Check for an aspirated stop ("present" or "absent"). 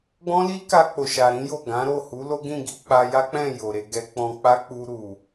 absent